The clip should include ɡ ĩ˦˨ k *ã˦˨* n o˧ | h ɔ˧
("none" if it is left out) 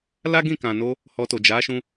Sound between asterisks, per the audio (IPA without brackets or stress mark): ã˨